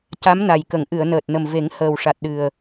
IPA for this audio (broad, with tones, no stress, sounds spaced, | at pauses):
c a˧˥ m n a˨˩ j k ə˨˩˨ ŋ ʔ ɨ˨˩˨ ə̯ n əː˨˩ t̚ n ə˨˩ m v e˨˩˦ ŋ h əː˨˩ w ʂ a˨˩ t̚ ɗ ɨ˨˩ ə̯